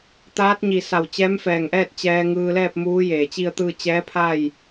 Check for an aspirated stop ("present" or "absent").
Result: present